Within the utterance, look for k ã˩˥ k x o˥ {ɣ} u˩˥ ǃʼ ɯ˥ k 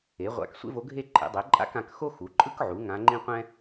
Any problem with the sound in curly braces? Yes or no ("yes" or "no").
yes